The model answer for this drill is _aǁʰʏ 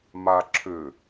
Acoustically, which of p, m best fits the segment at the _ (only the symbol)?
m